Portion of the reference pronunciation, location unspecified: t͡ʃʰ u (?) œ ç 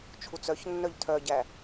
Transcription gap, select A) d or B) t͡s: B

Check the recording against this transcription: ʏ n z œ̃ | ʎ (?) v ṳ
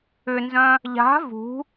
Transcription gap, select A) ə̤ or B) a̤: B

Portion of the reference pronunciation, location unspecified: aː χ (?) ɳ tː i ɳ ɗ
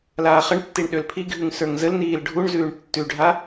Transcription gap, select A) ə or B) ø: A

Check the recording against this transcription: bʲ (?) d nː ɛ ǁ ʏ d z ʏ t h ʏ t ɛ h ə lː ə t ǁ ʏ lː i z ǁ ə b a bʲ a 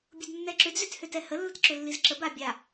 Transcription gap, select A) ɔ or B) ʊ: B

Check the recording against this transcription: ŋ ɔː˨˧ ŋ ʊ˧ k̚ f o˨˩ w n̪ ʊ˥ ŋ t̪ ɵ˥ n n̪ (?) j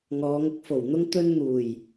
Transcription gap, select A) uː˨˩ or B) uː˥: A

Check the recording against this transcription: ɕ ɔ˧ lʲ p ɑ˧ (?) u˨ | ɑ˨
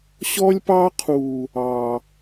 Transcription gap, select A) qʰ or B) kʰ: A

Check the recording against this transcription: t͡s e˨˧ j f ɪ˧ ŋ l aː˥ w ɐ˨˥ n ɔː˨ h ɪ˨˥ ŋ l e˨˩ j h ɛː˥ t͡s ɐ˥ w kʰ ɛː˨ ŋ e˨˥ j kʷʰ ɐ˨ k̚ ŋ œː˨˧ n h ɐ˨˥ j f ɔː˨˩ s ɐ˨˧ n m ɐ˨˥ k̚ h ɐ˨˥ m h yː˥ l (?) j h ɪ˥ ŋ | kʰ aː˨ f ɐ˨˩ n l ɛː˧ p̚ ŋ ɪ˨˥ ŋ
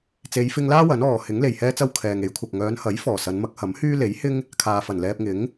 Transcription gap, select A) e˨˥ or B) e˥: A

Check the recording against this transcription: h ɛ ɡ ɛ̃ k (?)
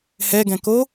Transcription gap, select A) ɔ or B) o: B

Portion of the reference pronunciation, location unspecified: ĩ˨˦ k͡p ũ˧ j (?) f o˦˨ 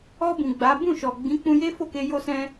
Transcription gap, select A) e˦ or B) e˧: A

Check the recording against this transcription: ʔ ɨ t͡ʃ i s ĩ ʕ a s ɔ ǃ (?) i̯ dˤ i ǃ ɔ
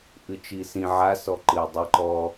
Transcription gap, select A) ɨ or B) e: A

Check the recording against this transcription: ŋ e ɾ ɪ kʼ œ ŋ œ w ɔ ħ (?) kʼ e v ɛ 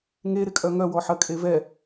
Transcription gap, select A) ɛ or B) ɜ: B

